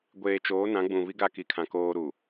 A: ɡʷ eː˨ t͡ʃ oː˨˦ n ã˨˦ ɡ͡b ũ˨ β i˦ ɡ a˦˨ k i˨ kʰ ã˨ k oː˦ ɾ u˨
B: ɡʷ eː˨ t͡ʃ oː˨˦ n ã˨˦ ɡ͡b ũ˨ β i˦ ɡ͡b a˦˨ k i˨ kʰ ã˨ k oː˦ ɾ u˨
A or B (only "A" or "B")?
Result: A